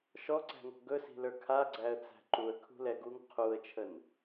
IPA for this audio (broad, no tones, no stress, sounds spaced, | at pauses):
ʃ ɔ ǀ æ̤ ŋ ɔ̤ ɡ ɵ s i̤ l ə˞ kʰ a ɡ͡ǀ æ ə̯ t͡s æ̤ ǃ u ə̯ kʰ ṳ l ɛ ɡ u ŋ qʰ u ə̯ t͡ʃʰ ə n